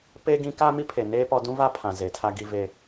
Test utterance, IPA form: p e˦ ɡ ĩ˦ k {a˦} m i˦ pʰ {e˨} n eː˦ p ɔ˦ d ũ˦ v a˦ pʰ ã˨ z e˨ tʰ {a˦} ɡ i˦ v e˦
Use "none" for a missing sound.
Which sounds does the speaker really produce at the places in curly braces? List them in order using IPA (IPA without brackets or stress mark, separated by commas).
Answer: a˦, e˨, a˦